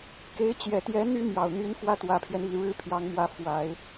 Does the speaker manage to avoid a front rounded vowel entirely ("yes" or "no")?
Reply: no